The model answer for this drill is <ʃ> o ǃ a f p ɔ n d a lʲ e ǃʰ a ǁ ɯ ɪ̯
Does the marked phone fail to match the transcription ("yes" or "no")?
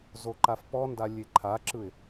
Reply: yes